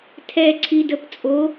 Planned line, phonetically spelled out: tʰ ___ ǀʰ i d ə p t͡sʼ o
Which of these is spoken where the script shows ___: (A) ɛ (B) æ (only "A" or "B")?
A